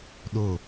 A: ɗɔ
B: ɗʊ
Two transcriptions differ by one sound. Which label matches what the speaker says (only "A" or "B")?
B